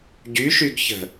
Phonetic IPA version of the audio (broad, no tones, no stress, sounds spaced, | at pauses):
ɟ y ʃ y ɡ ç ə̤